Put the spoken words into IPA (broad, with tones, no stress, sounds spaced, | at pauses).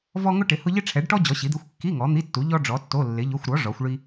v ɔ˥ ŋ ʊ˥ ʈ ɪ˨˥ h ʊ˥ ʎ ɪ˥ ʈ͡ʂʰ ɛ˨˥ ɖ ʈ ɔ˥ d͡ʑ ɔ˨˥ ɕ i˨˥ d̪ e˧˥˧ xʷ kː i˧˥˧ ŋ ɔ˨˥ n̪ i˧˥˧ tː u˨˥ ʎ ɔ˥ ɖ͡ʐ ɔ˨˥ tː o˧˥˧ lː ɪ˨˥ ʎ ʊ˧˥˧ xʷ ɾ ɔ˨˥ ʐ ɔ˨˥ xʷ ɭ i˥